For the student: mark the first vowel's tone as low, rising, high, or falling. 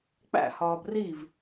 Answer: falling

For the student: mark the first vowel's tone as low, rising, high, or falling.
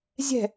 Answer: falling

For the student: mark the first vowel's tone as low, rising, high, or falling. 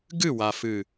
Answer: falling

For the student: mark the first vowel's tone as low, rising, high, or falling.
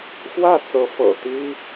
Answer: falling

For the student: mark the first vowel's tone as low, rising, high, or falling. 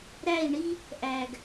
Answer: falling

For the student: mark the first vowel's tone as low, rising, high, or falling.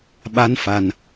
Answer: rising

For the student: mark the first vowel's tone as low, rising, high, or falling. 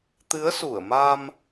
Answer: rising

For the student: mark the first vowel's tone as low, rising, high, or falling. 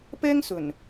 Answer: high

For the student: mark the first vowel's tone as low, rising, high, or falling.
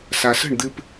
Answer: low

